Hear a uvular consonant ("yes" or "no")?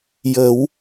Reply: no